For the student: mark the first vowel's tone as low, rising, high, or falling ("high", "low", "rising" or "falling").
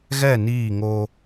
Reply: falling